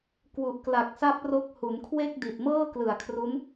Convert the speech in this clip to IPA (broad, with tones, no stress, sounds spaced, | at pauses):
k w u˨˩ ʔ k l a˨˩ k̚ s a˦˥ p̚ r o˦˥ k̚ h u˩˦ n kʰ w e˥˩ k̚ d i˨˩ t̚ m ɤː˥˩ k l ɯ˨˩ a̯ kʰ r u˦˥ n